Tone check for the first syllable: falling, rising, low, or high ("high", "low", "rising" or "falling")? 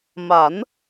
rising